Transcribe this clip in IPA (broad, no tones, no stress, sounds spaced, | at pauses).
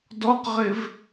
d ɔ q ʁ ɪ v